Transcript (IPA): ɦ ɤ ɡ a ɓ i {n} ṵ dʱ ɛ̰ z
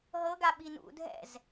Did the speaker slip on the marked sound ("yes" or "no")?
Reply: no